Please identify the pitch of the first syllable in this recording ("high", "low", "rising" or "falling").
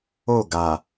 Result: falling